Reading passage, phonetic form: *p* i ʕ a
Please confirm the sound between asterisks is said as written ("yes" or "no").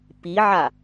yes